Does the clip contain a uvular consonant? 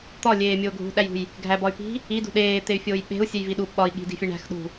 no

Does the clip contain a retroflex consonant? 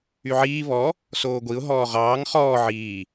no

